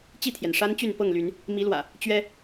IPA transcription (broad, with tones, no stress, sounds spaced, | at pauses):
t͡ɕ i˥˨ t̪ʰ j ɛ˩ n ʂ a˦ n t͡ɕ y˥˨ n p ɤ˥˨ ŋ l y˨˦ n | m i˨˦ l w ä̰˨˩ | t͡ɕ ɥ ɛ˦